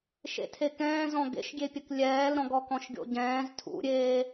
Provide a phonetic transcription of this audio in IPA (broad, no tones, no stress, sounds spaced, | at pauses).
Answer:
ʃ ḛ tʰ e k ɛ̃ː z ɔ̃ ɡ ḛ ʃ ɡʲ e pʲ ə k lʲ ɛː l ɾ ɔ̃ ɡ ɔ k ɔ̃ ʃ ɡʲ o̰ ɟ ɛ̃ː z tʰ ṵ ɾʲ eː